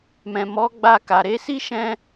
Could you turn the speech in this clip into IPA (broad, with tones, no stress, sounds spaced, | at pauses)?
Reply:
m ɛ̃˨ m ɔ˨˦ ɡ͡b a˧ k a˨ ɾ e˨˦ s i˦ ʃ ɛ̃˧